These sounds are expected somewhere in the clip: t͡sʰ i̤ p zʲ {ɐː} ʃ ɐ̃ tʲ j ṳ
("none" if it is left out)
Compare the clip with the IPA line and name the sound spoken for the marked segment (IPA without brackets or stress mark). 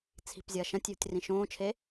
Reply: ɐː